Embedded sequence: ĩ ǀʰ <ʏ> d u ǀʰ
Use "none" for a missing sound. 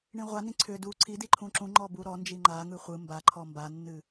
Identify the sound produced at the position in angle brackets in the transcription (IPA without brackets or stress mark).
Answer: ʏ